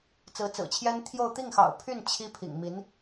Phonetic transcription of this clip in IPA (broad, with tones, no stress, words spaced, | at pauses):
t͡sɹ̩˧˥t͡sɹ̩˨˩t͡ɕʰjɛ˥n t̪ʰjo˥˧ʊ̯ t̪i˥˩ŋxɑ̰˨˩ʊ̯pʰy˥˩n t͡ɕʰi˥ pʰḭ˨˩ŋmi˧˥n